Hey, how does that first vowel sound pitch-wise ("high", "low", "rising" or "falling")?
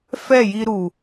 falling